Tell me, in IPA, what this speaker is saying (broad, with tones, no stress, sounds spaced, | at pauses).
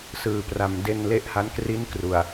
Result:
s ɯː˨˩ p r a˨˩ m d e˧ n l e˦˥ ʔ h a˦˥ n k r i˦˥ n k r u˨˩ a̯